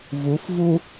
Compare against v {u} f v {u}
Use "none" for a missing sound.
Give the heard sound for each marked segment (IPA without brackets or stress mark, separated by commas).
u, u